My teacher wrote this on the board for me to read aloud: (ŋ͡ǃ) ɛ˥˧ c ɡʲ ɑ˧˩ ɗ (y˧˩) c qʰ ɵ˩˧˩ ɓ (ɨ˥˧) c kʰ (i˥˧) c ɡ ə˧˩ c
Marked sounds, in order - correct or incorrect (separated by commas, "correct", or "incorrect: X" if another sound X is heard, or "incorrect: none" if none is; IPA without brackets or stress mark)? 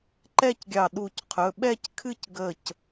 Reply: incorrect: ǃ, incorrect: u˧˩, incorrect: ɛ˥˧, incorrect: ɨ˥˧